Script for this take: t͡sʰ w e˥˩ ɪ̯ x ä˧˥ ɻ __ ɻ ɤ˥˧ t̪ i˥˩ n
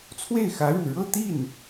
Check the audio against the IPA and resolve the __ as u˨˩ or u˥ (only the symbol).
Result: u˨˩